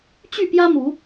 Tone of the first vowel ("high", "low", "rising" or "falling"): falling